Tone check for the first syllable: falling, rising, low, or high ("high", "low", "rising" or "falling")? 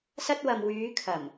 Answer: high